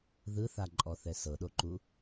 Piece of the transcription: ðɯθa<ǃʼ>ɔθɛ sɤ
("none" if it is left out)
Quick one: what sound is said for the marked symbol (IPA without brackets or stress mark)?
ǃʼ